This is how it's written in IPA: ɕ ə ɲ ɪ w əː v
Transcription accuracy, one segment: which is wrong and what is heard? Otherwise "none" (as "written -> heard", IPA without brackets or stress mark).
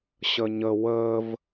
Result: ɪ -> ə